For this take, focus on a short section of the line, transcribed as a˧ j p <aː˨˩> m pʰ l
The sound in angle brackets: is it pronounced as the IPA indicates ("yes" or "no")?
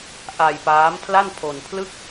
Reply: no